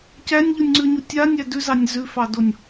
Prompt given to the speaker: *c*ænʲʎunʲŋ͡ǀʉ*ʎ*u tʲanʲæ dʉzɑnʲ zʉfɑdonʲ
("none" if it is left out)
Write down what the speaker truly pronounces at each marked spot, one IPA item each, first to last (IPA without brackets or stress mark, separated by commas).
c, ɲ